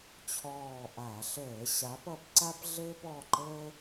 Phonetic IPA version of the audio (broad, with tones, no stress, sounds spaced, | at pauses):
t͡ɕʰ ɔː˦˨ ʔ a˧˩˧ ɬ əː˧˩˧ ɕ a˨˥ p ʌ˨˥ p ǀ a˥ p ɮ ɘː˥ p ɔ˩˧˩ ǃ əː˥